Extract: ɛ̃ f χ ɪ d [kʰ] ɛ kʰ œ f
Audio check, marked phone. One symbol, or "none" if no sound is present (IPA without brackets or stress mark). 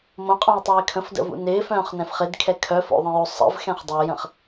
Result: kʰ